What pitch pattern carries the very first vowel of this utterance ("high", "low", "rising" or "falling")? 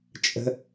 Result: high